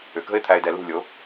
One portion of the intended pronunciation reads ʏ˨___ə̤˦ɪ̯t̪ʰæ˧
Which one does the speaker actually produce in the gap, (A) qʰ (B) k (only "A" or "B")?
B